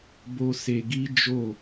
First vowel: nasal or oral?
oral